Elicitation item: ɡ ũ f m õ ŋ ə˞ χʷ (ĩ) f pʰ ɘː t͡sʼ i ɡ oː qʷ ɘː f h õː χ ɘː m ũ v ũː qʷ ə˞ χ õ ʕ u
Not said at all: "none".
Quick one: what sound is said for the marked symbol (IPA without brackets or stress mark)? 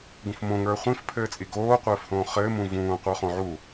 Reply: ĩ